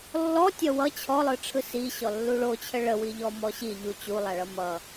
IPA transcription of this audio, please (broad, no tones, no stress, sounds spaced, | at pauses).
lː ɔ tʲ ʌ w ʌ t͡ɕʰ ɔ lˠ ɯ ʈ͡ʂʰ ɯ s i ɕ ɔ lː u ɭ o t͡ɕʰ ə ɭ ə w i ʎ ɔ m ɔ ɕ i ʎ u t͡ɕ u lˠ a ɭ ʌ m ʌ